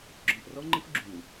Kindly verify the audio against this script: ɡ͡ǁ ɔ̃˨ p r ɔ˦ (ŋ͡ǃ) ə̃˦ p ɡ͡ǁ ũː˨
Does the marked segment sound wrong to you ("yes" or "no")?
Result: no